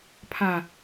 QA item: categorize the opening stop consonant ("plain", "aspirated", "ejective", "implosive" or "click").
aspirated